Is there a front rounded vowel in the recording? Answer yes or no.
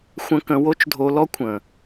no